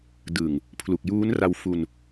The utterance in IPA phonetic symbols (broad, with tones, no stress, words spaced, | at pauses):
dɯ˨˩ŋ | pʰlu˨˩k̚juː˦˥nra˧wfu˧n